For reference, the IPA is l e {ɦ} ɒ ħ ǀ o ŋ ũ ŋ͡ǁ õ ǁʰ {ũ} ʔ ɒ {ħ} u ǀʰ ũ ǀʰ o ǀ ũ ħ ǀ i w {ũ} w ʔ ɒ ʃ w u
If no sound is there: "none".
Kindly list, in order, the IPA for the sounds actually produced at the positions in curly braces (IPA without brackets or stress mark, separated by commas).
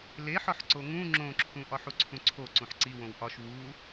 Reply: ħ, ũ, ħ, õ